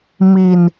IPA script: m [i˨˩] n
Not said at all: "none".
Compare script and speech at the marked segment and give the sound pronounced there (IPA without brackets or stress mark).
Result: i˧